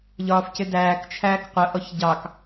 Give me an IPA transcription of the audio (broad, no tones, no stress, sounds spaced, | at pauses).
ʎ ɒː f c ɪ d æː k t͡ʃʰ æː k qʷ ə ʔ ɔ ç ɟ ɑ k